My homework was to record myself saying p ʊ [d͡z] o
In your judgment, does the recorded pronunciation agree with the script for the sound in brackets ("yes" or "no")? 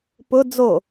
yes